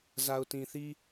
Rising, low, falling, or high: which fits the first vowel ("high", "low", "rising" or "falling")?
low